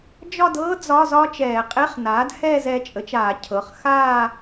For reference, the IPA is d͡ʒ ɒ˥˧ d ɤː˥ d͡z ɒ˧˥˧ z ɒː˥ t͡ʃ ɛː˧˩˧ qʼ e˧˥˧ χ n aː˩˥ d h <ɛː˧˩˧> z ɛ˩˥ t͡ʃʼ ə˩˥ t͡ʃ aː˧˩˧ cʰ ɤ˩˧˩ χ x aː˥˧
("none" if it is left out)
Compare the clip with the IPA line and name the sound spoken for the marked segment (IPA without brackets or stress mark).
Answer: ɛː˥˧